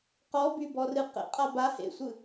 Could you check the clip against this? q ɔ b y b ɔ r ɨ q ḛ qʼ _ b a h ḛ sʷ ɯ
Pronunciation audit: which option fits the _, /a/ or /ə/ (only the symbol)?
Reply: a